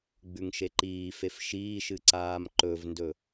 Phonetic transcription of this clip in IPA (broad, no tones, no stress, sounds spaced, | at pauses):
ɡ͡b ʉ ŋ ʃ e ǃ iː f e f ʃ iː ʃ ɨ ǀ aː m ǃ ɵ v n d ɵ